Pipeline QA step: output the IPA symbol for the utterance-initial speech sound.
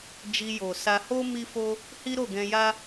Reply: d͡ʒ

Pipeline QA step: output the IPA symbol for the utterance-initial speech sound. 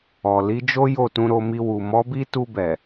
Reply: ɔ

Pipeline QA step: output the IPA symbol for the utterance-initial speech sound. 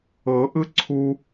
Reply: ɤ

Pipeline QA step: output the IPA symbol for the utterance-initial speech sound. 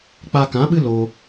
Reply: k͡p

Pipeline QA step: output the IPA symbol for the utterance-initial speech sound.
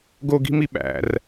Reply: ɡ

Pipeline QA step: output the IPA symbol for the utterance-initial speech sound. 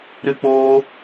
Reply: ɾ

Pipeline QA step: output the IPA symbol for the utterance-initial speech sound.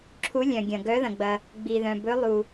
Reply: ǁʰ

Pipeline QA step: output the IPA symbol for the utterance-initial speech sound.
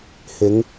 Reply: h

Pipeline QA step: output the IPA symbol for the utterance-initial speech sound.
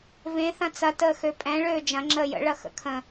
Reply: v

